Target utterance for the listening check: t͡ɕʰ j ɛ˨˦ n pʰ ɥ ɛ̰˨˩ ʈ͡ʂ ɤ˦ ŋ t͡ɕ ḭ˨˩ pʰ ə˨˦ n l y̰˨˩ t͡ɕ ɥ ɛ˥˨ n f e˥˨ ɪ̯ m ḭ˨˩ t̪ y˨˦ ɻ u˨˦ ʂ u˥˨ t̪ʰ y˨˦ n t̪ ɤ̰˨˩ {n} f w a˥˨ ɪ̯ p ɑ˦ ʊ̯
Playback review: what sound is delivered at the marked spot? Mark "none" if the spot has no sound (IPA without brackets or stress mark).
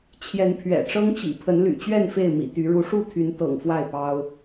ŋ